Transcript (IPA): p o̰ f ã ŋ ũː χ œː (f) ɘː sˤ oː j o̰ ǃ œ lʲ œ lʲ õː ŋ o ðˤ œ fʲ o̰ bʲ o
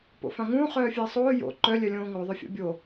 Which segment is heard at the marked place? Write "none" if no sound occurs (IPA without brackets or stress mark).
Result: fʲ